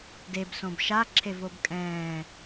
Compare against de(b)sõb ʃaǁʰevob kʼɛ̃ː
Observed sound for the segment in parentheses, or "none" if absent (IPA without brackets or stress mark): b